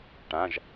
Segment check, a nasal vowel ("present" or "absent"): present